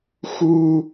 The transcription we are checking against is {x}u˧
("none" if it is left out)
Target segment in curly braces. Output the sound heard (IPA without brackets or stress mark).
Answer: x